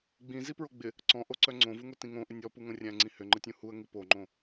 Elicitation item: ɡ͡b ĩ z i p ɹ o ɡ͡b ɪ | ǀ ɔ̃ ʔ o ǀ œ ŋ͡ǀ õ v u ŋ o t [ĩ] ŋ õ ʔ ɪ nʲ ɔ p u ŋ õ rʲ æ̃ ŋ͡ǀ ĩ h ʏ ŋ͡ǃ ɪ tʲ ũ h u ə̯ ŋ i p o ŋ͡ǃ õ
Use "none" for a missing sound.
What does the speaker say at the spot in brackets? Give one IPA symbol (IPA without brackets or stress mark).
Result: ĩ